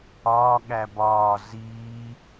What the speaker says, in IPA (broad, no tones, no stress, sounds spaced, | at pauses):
ɒː ɠ æ b ɒː z iː